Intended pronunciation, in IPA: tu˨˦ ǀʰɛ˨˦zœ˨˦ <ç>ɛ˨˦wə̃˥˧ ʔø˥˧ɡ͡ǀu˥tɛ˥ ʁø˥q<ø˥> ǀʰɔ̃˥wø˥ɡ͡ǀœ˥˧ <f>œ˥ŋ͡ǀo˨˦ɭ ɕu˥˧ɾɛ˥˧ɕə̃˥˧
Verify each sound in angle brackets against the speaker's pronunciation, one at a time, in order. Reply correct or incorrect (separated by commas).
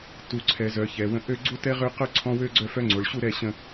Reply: correct, incorrect, correct